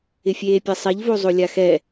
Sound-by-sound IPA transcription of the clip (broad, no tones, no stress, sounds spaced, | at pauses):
ɪ fʲ eː pʲ ɐ sˤ ɛ ʎ v o zˤ o lʲ a x ɛ